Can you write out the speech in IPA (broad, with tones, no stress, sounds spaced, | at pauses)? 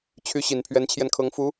t͡ɕʰ y˧˥ ɕ i˨˩ n pʰ ɥ ɛ˧˥ n t͡ɕʰ j ɛ˧ n kʰ ɤ˧˥ ŋ f u˧˥